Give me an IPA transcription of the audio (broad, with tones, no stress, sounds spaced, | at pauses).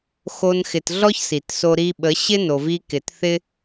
x o˦ n x ɪ˧ t ɮ ɔ˦ ç s i˨ t s o˧ ɾ i˧ ɓ ə˨˦ ɕ ɪ˦ n o˨ v i˧ k ɪ˨ t θ ɪ˦